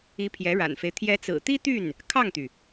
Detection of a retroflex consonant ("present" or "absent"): present